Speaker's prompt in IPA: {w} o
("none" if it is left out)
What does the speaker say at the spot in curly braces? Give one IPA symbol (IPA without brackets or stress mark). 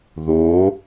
ð